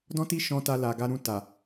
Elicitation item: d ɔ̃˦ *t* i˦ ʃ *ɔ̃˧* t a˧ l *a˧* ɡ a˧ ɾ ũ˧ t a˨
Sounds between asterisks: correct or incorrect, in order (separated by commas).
correct, correct, incorrect